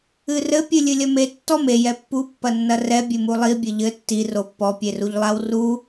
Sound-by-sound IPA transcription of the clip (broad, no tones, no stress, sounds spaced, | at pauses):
ɨ r ɘ pʲ ɨ lʲ ɨ lʲ ɐ m e tː ɔ m e j ɛ pː u pː ɐ nː ɐ r ɛ bʲ ɘ m u lˠ i bʲ ɘ ʎ ɘ tː i r o pː ɔ pʲ e r u ʎ lˠ a w r u